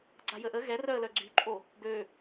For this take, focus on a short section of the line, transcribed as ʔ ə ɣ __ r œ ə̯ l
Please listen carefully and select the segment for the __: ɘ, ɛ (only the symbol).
ɛ